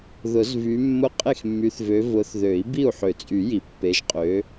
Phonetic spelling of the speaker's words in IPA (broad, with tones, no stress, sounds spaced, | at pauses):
ð ʊ˨˩˦ z v y˨˦ mː ʊ˦ qʼ e˥˩ x mː y˨˦ θ v ø˨˦ v ʊ˨˦ θ ð ø˨˩˦ i̯ b i˥˩ u̯ ħ ø˨˩˦ t͡sʼ y˨˩˦ j i˨˩˦ pː e˨˦ ʒ qʼ ø˨˦